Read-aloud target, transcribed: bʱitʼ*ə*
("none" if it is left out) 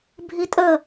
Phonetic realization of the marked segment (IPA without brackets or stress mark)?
ə